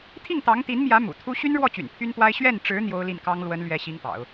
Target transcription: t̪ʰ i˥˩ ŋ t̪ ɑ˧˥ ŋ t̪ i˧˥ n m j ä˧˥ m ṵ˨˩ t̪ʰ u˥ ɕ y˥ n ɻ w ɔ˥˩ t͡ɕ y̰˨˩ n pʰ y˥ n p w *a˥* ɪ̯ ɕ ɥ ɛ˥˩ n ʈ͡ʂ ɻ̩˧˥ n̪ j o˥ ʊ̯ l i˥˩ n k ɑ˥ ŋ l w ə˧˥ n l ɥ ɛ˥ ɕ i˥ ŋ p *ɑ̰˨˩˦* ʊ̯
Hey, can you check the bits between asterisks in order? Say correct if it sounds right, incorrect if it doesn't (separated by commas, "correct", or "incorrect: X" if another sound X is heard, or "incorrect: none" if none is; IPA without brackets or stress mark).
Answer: correct, correct